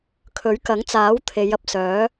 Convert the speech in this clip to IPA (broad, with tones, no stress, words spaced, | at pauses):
kʰɵ˨˥ɥkɐ˨˥ŋt͡saː˨˥w t̪ʰe˨˧j ɐ˧p̚sœː˨˥